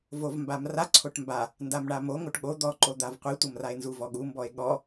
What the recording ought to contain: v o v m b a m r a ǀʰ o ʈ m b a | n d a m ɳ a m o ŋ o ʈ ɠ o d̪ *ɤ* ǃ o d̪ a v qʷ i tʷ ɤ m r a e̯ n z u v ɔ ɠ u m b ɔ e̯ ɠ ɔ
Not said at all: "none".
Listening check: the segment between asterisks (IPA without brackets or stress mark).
ɔ